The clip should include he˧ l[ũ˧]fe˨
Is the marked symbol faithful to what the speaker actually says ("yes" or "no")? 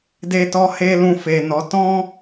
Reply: yes